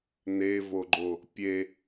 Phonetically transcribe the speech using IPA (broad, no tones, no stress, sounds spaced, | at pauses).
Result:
n e v o ɡ͡ǃ o | pʲ e